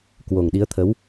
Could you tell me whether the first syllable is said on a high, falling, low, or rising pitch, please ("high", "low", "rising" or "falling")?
low